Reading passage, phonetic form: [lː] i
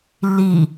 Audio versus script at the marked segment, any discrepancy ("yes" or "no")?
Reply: no